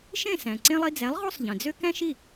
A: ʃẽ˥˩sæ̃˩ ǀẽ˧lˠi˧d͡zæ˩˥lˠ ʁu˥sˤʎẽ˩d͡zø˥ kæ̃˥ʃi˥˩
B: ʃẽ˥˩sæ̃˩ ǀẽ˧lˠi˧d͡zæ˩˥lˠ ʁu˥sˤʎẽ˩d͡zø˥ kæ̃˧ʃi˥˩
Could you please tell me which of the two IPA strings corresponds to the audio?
A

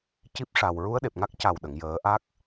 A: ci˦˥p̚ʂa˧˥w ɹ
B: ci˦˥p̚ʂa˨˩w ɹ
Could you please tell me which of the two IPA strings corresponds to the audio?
B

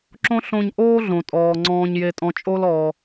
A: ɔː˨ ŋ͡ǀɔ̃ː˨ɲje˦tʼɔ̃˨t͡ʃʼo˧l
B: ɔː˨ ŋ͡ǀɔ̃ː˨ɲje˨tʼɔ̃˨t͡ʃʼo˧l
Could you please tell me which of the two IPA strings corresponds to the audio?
B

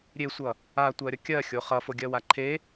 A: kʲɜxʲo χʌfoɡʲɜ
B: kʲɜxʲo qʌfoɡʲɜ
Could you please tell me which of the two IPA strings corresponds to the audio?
A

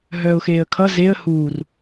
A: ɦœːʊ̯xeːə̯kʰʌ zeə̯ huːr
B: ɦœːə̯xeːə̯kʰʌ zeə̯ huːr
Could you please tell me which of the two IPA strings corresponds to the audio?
A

